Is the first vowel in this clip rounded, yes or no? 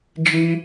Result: no